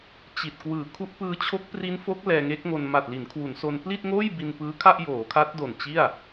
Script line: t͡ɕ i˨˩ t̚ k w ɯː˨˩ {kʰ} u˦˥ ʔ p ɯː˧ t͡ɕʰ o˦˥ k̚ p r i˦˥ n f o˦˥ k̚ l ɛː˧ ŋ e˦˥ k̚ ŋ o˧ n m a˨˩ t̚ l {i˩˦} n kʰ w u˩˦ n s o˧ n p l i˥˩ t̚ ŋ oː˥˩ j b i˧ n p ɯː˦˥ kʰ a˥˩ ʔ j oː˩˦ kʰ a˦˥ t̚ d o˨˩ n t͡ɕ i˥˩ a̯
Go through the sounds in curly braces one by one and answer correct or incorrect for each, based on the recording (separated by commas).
correct, correct